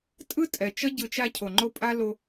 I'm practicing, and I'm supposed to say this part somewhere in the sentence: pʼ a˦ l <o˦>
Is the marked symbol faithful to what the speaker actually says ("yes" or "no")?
no